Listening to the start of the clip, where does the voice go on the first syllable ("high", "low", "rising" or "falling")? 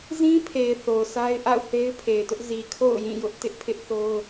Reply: high